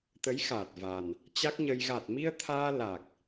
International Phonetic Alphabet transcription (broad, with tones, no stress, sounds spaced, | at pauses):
t̪ ə˨˦ j x aː˨˩ t̚ v a˨˩ n | t͡ɕ a˦˥ k̚ ɲ ə˧ j ɣ a˨˩ t̚ m i˧ ə̯ t̪ʰ aː˧ l a˨˩ k̚